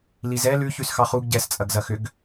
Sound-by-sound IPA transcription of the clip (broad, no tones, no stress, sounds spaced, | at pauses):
l i z ɛ l ʉ ç ʉ s x ɑ χ u ɡ ɟ ɛ s t͡sʼ ɐ ɡ z ɐ x ʏ ɡ